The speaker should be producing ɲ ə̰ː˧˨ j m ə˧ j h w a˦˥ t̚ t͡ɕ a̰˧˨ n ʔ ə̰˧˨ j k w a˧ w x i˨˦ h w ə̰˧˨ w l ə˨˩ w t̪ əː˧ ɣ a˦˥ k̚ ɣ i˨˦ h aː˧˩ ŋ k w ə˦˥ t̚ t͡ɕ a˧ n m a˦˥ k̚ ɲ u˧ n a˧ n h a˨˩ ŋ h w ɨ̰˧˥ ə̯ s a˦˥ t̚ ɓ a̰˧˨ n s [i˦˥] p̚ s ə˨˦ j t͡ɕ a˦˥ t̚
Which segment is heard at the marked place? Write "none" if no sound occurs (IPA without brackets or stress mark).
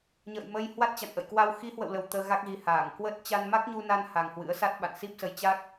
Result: i˦˥